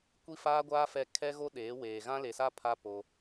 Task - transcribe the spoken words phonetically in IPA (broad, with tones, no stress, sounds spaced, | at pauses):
kʷ i˦ f aː˦ ɡʷ aː˦ f ɛ˦˨ kʰ ɛ˦ ɣ o˦ ɗ eː˨˦ w eː˨ ɣ ã˦ l e˨ s a˦ pʰ a˦ p o˦